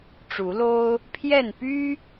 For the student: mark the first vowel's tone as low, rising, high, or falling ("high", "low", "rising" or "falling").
rising